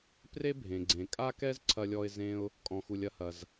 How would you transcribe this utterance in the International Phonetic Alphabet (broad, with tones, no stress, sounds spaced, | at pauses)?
p r e˥ bʱ ẽ˩ ɡ͡ǀ ẽ˩ kʼ a˥ k ɛ˥ z ǀʰ ɐ˧ lʲ ɔ˧ ɪ̯ z ẽ˧ ʊ̯ | kʼ ɔ̃˩ x u˩ lʲ ɐ˧ h ɐ˩ z